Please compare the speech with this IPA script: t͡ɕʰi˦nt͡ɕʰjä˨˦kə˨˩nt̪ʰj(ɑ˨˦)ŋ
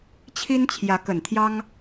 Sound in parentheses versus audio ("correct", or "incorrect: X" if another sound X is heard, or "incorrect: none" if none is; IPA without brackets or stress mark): incorrect: ɑ˦